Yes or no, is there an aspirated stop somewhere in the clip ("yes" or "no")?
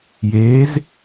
no